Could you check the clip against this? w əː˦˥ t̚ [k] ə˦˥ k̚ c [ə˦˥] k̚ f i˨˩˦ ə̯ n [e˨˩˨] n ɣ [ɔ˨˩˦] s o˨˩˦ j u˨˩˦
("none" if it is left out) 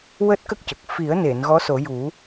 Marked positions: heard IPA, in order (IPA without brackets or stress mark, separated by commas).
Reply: k, ə˨˩, e˨˩˨, ɔ˧˥